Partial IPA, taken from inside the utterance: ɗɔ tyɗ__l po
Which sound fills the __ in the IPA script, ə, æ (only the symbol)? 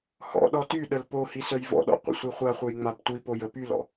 ə